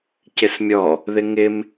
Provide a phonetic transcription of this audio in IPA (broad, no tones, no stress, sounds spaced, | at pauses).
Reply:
c ɪ s mʲ ɔ | ð ɪ ŋ ɪ m